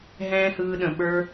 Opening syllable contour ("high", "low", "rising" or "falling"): high